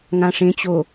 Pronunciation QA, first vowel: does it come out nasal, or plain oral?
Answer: nasal